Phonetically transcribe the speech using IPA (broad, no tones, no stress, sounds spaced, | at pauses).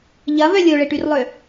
ʎ ɐ v œ lʲ o ɭ e ʈ y r lˠ ø